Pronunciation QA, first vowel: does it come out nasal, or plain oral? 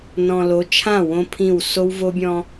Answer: nasal